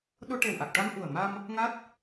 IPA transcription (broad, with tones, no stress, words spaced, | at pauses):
ɗo˧ʈe˨˩wʔa˨˩k̚ʈa˧m ʔu˨˩ə̯ ma˧m | ŋa˦˥t̚